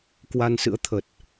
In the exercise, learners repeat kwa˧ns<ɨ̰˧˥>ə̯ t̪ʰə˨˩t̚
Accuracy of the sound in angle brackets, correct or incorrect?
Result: correct